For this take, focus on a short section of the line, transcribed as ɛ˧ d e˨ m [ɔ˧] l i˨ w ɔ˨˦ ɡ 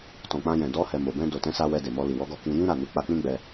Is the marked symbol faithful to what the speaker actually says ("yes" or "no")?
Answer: yes